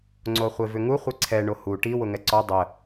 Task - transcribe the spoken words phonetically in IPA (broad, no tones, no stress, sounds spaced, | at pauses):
ŋ͡ǀ o χʷ e v ʏ ŋ u χʷ i ǀʰ ɛ ɳ o h u ʈ i w ʊ ŋ ɛ ǀ ɔ dˤ ə